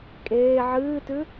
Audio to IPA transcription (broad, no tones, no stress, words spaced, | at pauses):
kʼeː ʕɨːtʉ